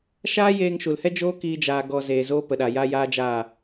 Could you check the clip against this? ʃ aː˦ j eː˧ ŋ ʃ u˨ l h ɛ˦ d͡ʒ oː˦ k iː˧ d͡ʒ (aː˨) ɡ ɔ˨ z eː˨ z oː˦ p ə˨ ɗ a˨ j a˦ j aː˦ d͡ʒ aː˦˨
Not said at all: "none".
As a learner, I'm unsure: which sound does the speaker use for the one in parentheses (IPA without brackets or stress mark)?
aː˨